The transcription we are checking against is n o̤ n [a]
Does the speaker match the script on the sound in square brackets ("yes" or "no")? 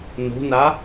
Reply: yes